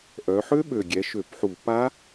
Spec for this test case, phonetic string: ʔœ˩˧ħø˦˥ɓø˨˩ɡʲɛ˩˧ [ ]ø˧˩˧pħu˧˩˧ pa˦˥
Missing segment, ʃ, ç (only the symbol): ʃ